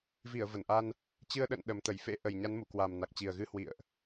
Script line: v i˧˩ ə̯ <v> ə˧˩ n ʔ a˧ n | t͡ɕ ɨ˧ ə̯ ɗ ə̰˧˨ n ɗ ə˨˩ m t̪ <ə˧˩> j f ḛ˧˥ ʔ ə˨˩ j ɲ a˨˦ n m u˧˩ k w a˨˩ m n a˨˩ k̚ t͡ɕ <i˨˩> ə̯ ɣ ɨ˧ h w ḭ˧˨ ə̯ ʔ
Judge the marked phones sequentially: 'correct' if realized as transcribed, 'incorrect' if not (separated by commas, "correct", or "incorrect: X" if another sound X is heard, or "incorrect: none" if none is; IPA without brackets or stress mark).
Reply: correct, correct, correct